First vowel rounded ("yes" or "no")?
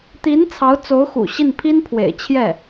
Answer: no